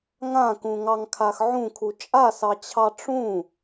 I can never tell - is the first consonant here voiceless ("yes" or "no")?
no